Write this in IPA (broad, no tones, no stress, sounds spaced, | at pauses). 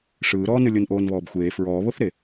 ʂ ɯː ɾ ɔː n ɯ lʲ o n ʔ oː n β ɔː b xʷ eː f ɹ ɔː β o θ ɾ e